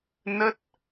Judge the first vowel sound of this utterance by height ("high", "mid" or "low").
mid